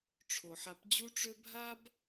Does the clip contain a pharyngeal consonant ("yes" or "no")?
yes